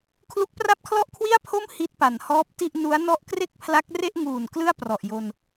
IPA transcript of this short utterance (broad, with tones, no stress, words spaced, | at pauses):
kʰlu˦˥k̚pra˥˩p̚kʰlɔ˥˩ʔkʰwi˥˩a̯ pʰo˥˩m hi˦˥t̚pa˩˦n hɔː˦˥p̚ti˥˩ʔ nu˦˥a̯ nɔ˥˩ʔ kre˥˩k̚pʰla˦˥k̚ re˥˩ʔŋuː˨˩n klɯ˥˩a̯prɔ˨˩ʔjo˧n